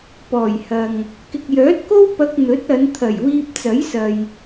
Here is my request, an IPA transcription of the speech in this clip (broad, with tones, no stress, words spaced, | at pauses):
pɔː˨˩jhɐ˨ŋ | kɪ˨k̚jœː˨˥t̚ko˥w pɐ˧k̚n̪ɵ˨˥t̚ɐ˨˧nt̪ʰɐ˨˩j wiː˧p̚t͡sɐ˨˥jsɐ˨j